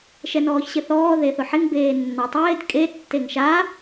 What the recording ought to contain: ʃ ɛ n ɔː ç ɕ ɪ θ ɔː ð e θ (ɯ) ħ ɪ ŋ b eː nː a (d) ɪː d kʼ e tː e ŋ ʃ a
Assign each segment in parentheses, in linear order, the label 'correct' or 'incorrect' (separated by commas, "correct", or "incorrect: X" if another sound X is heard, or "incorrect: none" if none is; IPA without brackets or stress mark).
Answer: incorrect: ʊ, incorrect: tˤ